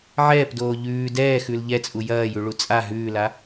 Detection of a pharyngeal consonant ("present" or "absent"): present